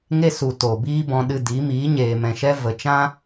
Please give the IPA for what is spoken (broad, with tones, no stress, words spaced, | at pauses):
ŋe˦su˨ to˨biː˦bɔ̃˧ɗɨ˧ di˨˦ miː˨˦ɲeː˨mɛ̃˨ʃɛ˦ və˨t͡ʃã˦